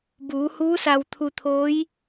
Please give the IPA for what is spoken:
b uː˩˧ h uː˧˥ s a˧ w t̪ʰ u˧ t̪ʰ oː˧˥ j

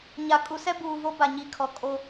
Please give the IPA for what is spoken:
ɲ a˨ kʼ u˨ s ɛ˦ b uː˨ v o˦ b a˨ ɲ i˨ kʰ ɔ˨ kʼ o˦

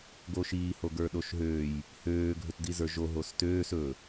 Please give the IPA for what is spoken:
ɡ o ʃ iː h o ɡ ə˞ ɗ o ʃ ɦ øː j | h øː ɡʱ ɵ t d i z ə˞ ʒ o ɦ o s t øː s ɵ

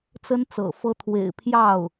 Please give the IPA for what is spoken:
t͡s ə˥ n t͡s ɤ̰˨˩ f ɤ˥ t̪ʰ w ḛ˨˩ ɪ̯ pʰ j ɑ˥˩ ʊ̯

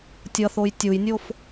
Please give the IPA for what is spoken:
tʲ ʌ θ o j tʲ u j nʲ o f

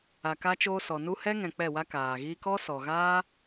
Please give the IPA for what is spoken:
a˨ k a˧ t͡ʃ oː˧ s ɔ˨ n u˦ h ɛ˦ ŋ ɛ̃˨ k͡p ɛ˦˨ w a˦ k aː˨ ɣ iː˦ k ɔ˦ s ɔ˨ ɣ aː˦

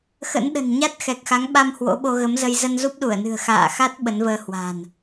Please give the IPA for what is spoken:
x ə̰˧˥ n ɗ ə̤˨˩ n ɲ a˦˥ t̚ x ɛ˨˩ k̚ x a˨˦ ŋ ɓ a˧ m h w o̰˧˥ ɓ o˧ ɣ ə˨˦ m z ə˧ j z ə˧ n z u˦˥ p̚ ɗ u˧˩ ə̯ n ɨ̤˨˩ ə̯ x a̰ː˧˨ x a˦˥ t̚ ɓ ə˨˦ n v əː˧ h w a̤˨˩ n

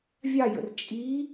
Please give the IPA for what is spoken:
vʲ ɑ j ə̰ r t͡ʃʼ i

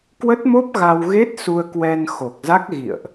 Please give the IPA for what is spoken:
k w ə˦˥ t̚ m o˦˥ p̚ ɣ a˧ w ɣ e˦˥ t̚ s u˧ ə̯ k w ɛ˧ n x o˨˩ k̚ z a˦˥ k̚ ɣ ḭ˧˨ ə̯ ʔ

